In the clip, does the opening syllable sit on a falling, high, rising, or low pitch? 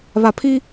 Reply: low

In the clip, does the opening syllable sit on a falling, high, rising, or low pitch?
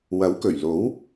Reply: rising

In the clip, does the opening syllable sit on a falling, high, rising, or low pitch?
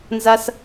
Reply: high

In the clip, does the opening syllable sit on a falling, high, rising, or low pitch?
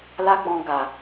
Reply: high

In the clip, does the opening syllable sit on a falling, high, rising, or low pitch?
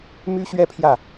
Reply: high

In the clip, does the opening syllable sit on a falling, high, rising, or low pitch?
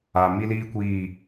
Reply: low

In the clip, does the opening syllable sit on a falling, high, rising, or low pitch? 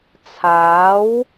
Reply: rising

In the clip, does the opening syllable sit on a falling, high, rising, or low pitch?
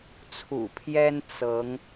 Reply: low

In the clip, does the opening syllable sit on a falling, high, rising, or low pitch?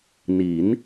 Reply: rising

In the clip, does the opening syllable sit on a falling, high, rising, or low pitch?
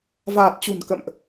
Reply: low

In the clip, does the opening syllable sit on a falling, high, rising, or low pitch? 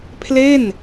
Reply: falling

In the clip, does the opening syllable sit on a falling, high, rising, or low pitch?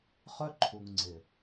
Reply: high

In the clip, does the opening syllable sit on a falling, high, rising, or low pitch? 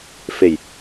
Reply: low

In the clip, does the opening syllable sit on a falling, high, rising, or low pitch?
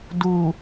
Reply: low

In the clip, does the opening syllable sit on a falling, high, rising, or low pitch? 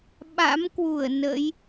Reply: rising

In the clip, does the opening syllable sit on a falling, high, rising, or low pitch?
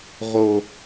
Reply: high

